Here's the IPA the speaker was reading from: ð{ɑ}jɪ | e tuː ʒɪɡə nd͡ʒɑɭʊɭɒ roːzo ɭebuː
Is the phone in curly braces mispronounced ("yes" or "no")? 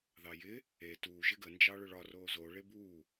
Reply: no